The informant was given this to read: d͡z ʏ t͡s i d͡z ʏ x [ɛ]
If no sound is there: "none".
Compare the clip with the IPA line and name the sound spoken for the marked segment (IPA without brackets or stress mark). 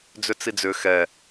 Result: ɛ